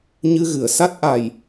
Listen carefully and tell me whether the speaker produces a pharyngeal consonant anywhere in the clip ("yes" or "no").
no